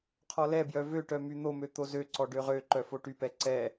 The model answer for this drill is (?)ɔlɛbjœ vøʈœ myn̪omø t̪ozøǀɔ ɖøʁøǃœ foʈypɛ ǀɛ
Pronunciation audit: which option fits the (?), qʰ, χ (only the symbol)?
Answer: qʰ